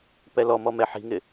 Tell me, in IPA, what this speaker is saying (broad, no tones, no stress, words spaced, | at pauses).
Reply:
pɛlɔmɔ mɛħi̤ŋɪ